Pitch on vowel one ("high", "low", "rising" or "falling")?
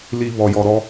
low